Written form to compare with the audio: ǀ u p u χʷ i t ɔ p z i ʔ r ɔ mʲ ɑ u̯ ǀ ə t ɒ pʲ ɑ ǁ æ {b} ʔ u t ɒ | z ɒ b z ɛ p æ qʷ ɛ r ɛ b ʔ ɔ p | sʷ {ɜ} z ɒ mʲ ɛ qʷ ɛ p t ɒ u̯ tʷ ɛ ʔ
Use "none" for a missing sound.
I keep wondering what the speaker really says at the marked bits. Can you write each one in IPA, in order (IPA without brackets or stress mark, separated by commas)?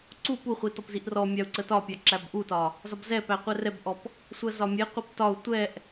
b, ɜ